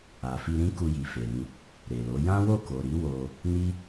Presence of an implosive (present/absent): absent